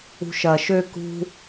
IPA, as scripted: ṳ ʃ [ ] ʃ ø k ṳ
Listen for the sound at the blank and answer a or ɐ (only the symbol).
ɐ